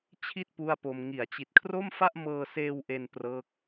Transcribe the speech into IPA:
t͡ɕʰ i˥˩ t̚ p u˥˩ a̯ p o˧ m ŋ i˩˦ a̯ t͡ɕ i˨˩ t̚ kʰ r o˥˩ m f a˥˩ ʔ m ɤː˧ s eː˧ w ʔ e˧ n p r ɤː˦˥ k̚

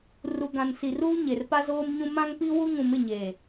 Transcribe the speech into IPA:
r u˨ ɡ ã˨ n s i˨ r uː˦ ɲ e˨ r p a˦ z oː˦ m ɲ ũ˦ m ã˦ ŋ p i˦ w u˦ ŋ ũ˨ m ɪ˦˨ ɲ eː˨

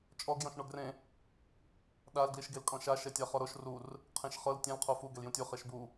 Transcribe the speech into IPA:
t͡ʃʼ ɔ ɡ j ɔ̃ ʃ ɳ o ɡ r ẽ | ɗ a l ɡ l i ʃ ɡ e l kʼ ɔ̃ ʃ a ʃ ɛ tʲ a χ ɔ ɾ o ʃ r u r | qʰ ẽ ʃ χ ɤ l tʲ ɛ̃ l qʰ o f u ɡ ɛ l j ũ tʲ u χ e ʃ b u

